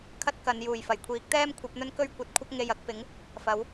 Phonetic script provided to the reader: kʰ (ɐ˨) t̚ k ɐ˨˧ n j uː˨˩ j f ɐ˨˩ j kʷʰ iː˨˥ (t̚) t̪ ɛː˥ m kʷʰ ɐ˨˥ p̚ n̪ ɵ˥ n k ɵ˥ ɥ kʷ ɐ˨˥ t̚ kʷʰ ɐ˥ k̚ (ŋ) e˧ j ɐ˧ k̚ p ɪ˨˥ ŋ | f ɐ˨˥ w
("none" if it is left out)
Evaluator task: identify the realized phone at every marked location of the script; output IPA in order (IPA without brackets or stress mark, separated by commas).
ɐ˥, k̚, ŋ